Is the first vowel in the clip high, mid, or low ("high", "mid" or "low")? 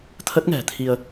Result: mid